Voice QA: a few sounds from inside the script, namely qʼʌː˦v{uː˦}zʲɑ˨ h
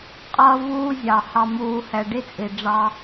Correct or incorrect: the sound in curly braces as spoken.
correct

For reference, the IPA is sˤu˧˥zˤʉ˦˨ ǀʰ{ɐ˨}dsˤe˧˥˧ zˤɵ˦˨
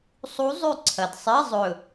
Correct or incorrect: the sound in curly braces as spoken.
correct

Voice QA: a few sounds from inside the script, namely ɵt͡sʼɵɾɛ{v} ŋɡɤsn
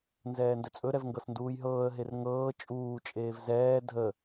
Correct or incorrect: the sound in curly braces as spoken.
correct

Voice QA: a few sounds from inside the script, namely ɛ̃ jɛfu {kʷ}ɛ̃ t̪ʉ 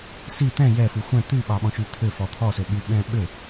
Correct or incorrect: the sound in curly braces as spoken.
incorrect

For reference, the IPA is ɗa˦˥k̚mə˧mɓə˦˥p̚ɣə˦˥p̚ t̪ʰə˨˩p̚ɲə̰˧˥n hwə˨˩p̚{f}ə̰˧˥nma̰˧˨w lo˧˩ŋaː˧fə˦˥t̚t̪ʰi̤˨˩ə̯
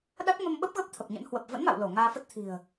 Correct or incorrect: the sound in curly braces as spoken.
incorrect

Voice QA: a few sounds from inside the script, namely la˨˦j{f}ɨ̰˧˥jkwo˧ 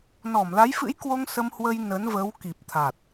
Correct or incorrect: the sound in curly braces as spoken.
correct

